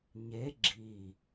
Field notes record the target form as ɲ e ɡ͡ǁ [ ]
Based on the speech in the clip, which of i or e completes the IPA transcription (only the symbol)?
i